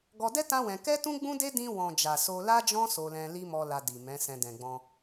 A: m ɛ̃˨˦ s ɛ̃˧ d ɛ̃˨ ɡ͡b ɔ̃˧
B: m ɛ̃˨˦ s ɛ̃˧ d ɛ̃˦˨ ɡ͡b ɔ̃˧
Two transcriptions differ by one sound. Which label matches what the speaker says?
A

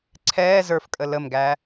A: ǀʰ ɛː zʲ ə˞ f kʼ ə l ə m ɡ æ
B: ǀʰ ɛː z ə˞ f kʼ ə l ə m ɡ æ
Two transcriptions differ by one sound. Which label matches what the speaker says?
B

